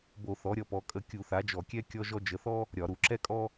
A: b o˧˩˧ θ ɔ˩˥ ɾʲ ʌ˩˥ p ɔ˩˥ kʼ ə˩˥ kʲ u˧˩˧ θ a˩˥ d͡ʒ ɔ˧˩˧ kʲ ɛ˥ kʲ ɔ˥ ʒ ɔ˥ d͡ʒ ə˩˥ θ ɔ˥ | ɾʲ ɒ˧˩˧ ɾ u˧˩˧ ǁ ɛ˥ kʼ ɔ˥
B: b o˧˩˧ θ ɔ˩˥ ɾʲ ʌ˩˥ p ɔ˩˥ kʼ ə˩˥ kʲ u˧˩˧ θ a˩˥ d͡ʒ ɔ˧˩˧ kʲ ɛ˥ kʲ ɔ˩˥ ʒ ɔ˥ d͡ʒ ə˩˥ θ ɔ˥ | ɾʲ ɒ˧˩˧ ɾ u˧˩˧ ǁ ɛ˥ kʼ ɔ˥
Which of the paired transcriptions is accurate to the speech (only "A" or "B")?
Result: A